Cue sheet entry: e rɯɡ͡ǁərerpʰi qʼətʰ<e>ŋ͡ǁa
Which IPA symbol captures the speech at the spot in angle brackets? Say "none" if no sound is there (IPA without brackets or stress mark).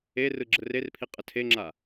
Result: e